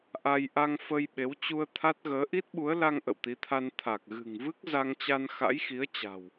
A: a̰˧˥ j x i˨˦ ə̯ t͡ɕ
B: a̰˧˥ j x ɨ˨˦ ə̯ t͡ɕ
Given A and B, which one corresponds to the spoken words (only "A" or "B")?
A